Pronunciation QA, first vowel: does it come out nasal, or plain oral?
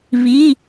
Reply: oral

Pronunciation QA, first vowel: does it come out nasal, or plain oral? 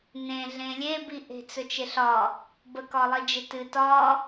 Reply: nasal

